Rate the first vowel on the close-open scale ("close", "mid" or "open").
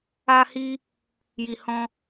open